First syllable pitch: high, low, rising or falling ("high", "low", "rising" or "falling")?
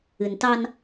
low